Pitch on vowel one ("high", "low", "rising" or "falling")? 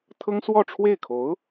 high